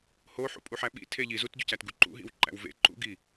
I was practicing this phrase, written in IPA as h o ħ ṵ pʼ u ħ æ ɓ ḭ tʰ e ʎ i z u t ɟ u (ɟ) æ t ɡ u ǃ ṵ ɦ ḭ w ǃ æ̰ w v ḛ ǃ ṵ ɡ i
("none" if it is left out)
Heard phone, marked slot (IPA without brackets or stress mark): c